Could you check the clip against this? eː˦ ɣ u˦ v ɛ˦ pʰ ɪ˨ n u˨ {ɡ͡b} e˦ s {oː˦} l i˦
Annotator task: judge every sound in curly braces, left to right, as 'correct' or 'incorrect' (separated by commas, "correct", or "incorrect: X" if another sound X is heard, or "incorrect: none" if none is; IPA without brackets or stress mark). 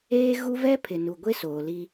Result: incorrect: ɡʷ, incorrect: oː˨